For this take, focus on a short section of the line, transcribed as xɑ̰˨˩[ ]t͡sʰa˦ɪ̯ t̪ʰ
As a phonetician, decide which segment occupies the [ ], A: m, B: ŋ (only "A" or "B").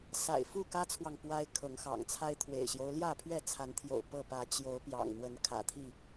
B